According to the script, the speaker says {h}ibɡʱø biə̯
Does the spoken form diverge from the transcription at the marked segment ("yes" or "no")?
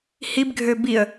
no